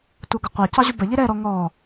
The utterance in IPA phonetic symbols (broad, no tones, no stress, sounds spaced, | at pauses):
tʷ ɜ ɡ ʊ qʷ æ c ɑ ʑ u b ə ʎ i ɾ ɛ ɾ ɔ ŋ ɔ